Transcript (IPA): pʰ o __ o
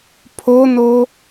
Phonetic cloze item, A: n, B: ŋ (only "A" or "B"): A